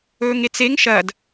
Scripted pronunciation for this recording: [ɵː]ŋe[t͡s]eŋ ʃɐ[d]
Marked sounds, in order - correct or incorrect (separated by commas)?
correct, correct, correct